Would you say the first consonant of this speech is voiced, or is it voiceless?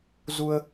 voiced